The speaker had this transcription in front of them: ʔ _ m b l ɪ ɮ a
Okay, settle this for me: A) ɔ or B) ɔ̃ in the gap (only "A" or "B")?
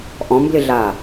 B